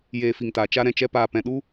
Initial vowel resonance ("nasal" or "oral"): oral